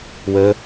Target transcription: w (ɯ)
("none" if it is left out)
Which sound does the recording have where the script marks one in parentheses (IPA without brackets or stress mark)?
ə